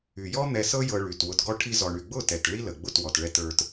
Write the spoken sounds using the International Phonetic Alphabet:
y˨ j ɔ˦ n̪ ɛ˧ s ɤ˦ j ɤ˧ ɭ y˨ t w ʊ˧ t ɡ ɔ˦ ʈʰ i˧ z ɔ˨ ɳ y˨ ɡ͡b ʊ˦˨ t ɛ˨ t ɭ i˦ l ə˨ ɡ͡b ʊ˦˨ t w ɔ˨ t ɭ ɛ˧ t ə˞˧ t

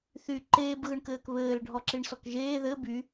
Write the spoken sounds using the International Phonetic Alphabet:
θ y ǃ eː b ɣ ɯ ɳ k ɘː k β ɘː l ɖʱ ɔ ǁ i ɳ s ɔ k ʒ eː ð ɘ b y

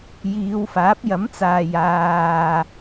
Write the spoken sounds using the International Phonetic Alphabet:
j iː˨˧ w f aː˨˥ p̚ j ɐ˨˥ m t͡s aː˨ j aː˨

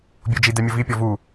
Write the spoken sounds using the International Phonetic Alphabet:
bʲ o d͡ʒ i d ɛ mʲ o v i pʲ ɔ v u

